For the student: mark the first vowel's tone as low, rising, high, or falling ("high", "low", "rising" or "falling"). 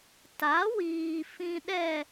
rising